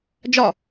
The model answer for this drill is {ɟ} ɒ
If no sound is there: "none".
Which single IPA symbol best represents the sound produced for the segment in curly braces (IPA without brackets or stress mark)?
d͡ʒ